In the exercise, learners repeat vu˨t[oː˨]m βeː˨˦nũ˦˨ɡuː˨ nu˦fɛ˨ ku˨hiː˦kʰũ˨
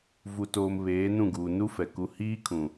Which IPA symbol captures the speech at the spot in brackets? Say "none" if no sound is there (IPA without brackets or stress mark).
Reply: oː˨